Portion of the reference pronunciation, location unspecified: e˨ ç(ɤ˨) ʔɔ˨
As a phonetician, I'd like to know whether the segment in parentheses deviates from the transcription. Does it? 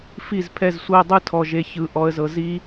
yes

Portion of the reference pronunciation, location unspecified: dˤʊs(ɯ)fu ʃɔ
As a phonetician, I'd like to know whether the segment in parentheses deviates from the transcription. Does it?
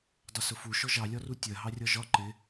yes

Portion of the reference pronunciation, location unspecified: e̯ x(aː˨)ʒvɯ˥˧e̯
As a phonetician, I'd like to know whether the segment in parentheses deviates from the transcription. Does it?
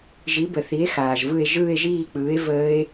no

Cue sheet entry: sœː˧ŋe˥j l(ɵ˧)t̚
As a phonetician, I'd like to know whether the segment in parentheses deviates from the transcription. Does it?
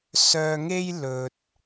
no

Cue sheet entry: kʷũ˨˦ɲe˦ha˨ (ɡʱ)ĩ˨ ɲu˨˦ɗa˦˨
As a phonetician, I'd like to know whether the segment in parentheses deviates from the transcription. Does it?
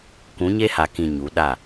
yes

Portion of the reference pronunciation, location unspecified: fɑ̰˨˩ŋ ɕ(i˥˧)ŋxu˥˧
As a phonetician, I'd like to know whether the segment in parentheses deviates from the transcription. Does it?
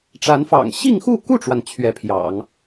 no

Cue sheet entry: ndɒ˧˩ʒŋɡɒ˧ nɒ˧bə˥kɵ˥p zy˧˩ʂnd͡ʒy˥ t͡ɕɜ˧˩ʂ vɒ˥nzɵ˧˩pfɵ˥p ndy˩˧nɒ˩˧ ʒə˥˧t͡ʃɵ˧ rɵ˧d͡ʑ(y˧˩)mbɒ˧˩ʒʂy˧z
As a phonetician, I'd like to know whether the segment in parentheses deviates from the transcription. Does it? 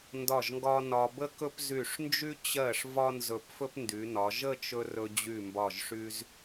no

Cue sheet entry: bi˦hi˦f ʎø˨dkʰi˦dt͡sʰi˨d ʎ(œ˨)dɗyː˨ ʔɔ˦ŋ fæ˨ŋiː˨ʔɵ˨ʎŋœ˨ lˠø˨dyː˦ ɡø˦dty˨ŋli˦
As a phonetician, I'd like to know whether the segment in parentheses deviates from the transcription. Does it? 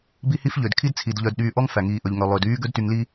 no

